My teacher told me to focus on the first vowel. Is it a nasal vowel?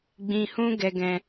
yes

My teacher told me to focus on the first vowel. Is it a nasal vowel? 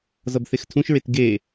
no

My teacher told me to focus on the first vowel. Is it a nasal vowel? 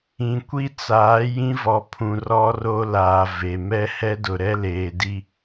yes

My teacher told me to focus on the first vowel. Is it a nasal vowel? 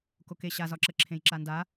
no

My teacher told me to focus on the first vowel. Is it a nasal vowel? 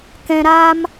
yes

